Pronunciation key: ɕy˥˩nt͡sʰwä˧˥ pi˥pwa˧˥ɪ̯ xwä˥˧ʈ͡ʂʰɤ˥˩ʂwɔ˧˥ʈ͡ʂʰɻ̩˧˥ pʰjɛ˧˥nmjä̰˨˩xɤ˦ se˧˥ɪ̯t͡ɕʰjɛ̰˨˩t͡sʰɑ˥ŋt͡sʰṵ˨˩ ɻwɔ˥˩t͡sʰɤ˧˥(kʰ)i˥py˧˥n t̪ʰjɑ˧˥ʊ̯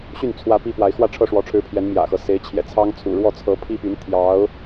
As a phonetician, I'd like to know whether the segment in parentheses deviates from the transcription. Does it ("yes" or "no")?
yes